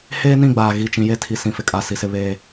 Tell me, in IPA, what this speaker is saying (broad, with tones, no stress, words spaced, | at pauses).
heː˦nĩ˦˨ɡ͡baː˨ ɣi˦˨t͡ʃĩ˦ je˦tʰi˨sĩ˨ fɪ˨kʼa˦˨ si˦sɪ˦ βeː˦